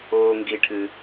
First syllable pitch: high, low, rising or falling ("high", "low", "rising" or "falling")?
low